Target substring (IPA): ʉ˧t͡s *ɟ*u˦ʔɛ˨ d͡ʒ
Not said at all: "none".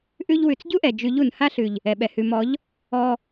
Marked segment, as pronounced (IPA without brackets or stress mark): ɟ